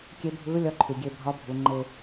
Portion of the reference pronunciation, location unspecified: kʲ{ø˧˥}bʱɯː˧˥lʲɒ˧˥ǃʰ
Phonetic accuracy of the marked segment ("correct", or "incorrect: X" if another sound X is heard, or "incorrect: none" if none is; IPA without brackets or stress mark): incorrect: e˧˥